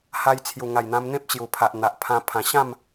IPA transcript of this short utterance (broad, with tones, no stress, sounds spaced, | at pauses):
h a˧ j t͡sʰ j u˨˩ ŋ a˨˩ j n̪ ã˧ m n̪ ẽ˦ p̚ t͡ɕ j u˨˩ pʰ a˨ ʔ n̪ a˨ ʔ pʰ ã˧ pʰ ã˨˩ ɕ ã˥˧ m